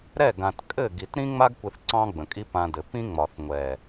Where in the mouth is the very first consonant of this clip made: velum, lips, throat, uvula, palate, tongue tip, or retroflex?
tongue tip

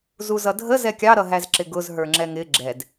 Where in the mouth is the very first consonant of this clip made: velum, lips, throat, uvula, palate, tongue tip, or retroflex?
tongue tip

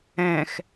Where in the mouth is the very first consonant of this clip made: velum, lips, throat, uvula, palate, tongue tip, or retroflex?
velum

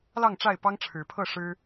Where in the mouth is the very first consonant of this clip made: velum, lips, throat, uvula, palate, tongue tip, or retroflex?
tongue tip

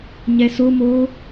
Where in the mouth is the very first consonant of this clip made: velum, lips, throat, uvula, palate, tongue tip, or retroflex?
palate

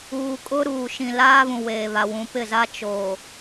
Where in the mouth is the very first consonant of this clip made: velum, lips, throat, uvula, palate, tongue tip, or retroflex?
velum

